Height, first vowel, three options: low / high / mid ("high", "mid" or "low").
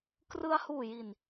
high